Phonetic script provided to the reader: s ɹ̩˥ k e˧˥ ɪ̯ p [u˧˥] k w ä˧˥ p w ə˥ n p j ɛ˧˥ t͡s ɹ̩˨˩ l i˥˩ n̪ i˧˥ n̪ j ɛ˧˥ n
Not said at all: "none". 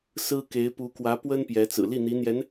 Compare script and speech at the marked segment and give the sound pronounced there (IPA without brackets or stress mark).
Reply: u˧˥